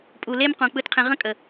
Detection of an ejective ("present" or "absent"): present